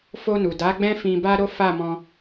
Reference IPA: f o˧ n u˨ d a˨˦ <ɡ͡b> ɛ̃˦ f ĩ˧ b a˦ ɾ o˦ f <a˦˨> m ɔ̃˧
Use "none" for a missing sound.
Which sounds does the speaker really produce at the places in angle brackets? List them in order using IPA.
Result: ɡ͡b, a˦˨

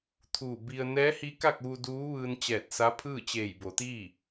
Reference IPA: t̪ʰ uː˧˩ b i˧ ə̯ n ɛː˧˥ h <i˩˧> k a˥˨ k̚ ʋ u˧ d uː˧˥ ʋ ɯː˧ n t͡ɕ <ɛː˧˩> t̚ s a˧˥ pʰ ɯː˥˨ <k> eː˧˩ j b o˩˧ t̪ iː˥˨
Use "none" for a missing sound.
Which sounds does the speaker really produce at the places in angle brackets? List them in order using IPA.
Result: i˧˥, ɛː˧˩, t͡ɕ

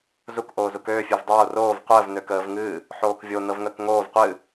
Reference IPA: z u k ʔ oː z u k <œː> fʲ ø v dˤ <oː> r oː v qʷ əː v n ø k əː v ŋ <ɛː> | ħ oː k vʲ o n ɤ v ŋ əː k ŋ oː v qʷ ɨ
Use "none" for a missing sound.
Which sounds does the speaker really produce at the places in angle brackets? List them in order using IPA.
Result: øː, oː, ɨː

